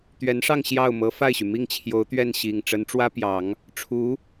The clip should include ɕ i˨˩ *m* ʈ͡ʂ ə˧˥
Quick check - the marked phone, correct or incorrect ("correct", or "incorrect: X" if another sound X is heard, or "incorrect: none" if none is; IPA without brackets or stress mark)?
incorrect: ŋ